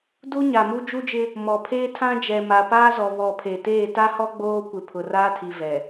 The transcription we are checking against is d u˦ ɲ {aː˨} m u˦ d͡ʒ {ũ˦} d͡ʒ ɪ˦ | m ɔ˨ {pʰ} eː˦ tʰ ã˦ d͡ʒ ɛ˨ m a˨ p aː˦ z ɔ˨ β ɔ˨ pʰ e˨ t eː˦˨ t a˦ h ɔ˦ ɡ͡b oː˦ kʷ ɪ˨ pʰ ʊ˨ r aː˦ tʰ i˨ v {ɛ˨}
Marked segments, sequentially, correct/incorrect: incorrect, incorrect, correct, correct

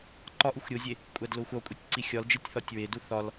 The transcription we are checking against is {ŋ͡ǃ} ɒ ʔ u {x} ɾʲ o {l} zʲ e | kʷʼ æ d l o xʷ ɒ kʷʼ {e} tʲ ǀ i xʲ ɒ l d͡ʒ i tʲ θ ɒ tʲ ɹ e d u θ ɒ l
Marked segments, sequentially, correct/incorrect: incorrect, incorrect, incorrect, incorrect

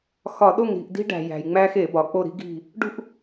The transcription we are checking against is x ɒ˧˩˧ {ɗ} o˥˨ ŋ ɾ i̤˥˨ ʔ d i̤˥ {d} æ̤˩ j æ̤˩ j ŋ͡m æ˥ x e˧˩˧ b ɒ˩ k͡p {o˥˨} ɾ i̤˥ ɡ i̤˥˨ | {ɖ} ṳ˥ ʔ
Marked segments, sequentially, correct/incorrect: correct, incorrect, correct, correct

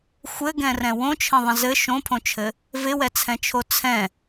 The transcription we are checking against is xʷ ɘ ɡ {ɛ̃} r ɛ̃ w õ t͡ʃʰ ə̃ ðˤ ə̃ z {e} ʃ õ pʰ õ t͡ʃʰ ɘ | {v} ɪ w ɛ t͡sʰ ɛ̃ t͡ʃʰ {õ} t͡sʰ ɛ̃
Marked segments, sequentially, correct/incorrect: correct, incorrect, correct, incorrect

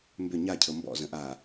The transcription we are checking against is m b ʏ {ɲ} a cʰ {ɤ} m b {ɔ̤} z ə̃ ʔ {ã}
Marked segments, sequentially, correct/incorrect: correct, correct, incorrect, incorrect

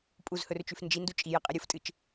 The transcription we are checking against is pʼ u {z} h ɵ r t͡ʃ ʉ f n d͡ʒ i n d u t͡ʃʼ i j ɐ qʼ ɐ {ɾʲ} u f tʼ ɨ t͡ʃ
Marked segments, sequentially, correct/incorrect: correct, correct

